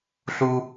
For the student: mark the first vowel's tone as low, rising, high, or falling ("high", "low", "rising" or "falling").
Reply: high